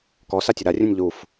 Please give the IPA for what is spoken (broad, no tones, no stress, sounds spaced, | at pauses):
k ɔ s a tʲ ʌ ɾ a rʲ ũ nʲ ʎ u f